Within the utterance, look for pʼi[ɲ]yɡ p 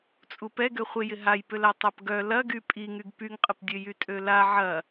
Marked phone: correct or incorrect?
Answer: incorrect